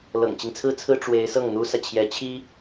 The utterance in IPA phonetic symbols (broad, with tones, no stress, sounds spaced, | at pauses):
l ɤ̰˨˩ ŋ t͡ɕ i˦ ŋ t͡sʰ ɹ̩˥ t͡sʰ ɹ̩˥ ʈ͡ʂ w e˧˥ ɪ̯ s ɤ˥˩ ŋ n̪ u˥ s ä˨ t͡ɕʰ j ɛ˧˥ t͡ɕʰ i˥